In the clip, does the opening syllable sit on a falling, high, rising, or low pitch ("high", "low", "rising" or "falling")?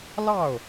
falling